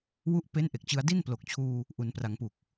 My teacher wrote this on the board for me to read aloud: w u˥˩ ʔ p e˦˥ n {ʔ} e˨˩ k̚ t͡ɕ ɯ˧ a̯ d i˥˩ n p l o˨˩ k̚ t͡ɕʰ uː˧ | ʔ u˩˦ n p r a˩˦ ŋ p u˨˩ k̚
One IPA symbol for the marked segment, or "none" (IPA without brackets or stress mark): ʔ